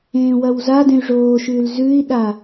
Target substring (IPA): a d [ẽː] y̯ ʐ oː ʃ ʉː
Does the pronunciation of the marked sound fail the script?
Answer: yes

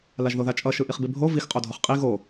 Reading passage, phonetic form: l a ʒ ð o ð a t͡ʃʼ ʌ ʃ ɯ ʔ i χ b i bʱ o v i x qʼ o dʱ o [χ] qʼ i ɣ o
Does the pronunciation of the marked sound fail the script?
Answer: no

